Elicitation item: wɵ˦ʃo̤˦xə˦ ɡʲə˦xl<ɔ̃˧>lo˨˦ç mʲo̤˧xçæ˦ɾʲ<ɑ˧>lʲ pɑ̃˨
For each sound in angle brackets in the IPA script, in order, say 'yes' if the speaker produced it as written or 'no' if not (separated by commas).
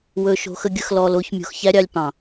no, yes